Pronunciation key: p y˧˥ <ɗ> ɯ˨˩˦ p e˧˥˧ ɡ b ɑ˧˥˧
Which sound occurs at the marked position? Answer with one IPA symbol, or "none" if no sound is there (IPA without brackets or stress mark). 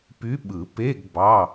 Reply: ɓ